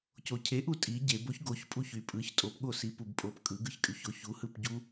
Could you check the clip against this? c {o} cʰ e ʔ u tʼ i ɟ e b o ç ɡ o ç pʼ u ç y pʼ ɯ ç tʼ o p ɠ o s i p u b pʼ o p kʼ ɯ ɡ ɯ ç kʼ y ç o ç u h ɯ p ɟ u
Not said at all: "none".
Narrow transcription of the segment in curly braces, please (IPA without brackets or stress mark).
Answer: o